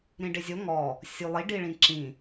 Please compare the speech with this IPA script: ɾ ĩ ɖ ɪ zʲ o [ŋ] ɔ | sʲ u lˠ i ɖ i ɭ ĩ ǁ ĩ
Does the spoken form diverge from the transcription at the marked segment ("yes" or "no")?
no